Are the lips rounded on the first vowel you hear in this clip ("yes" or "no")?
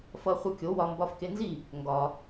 no